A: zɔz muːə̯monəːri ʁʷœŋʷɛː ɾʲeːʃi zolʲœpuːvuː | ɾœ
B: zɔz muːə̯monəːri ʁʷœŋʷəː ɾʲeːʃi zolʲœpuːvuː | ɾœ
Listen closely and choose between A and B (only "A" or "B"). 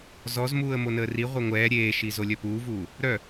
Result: A